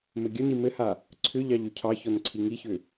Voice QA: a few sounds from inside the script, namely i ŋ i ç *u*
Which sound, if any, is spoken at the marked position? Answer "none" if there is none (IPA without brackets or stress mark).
ʏ